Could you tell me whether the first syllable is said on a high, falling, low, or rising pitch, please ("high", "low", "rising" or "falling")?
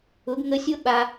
rising